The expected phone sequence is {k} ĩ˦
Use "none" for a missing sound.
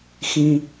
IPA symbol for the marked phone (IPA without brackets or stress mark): x